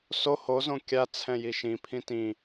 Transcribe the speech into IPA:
s o h o z õ kʲ a t͡sʰ ɛ̃ j i ʃ ĩ pʰ ĩ t ĩ

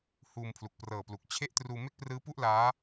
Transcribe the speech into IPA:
h uː˧ m pʰ l u˨˩ k̚ p r ɤː˨˩ p l u˨˩ k̚ t͡ɕʰ e˥˩ ʔ t r uː˧ m e˥˩ k̚ p r ɯː˦˥ p u˥˩ ʔ l aː˦˥

